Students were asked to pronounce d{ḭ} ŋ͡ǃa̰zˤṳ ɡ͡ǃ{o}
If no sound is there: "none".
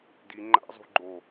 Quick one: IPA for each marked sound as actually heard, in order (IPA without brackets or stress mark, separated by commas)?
i, o